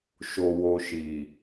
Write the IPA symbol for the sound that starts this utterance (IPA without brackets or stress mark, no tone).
ʃ